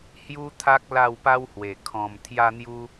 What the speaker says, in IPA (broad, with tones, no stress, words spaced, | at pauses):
hju˦t̪ʰa˦k̚ la˥˧wpa˦whwe˨˩ kʰɔ̃˨˩m t̪ʰja˧n̪ju˧